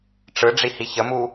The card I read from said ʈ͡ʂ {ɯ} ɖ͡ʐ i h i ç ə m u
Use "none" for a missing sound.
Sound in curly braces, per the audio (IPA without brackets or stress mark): ɯ